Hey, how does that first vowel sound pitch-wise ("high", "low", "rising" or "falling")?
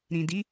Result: low